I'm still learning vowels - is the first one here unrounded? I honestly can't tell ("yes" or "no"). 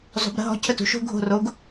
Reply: no